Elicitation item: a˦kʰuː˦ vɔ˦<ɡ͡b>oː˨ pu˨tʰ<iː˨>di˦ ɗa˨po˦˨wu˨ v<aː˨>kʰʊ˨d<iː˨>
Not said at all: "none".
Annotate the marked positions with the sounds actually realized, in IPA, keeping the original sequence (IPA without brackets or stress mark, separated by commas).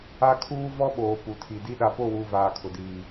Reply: ɓ, i˨, aː˨, iː˨